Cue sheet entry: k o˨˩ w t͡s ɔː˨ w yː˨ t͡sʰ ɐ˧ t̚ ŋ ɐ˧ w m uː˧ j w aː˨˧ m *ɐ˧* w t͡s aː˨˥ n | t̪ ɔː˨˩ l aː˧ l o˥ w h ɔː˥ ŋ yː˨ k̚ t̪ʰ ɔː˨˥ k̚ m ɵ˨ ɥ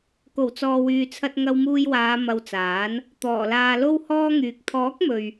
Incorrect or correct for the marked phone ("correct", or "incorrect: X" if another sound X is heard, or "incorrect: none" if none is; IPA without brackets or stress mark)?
correct